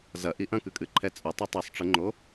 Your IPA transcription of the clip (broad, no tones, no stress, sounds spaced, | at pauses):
z ɐ ʔ i ʔ ɐ̃ k ʉ kʼ ɨ ǃʰ ɛ t͡sʼ ʊ tˤ o tˤ u sˤ ʈ͡ʂ ɨ ŋ͡ǃ o